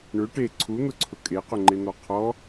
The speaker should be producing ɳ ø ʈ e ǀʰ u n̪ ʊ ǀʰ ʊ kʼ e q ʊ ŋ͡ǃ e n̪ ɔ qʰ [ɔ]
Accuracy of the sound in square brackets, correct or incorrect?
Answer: correct